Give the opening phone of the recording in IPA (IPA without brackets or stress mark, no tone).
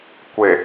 kʷ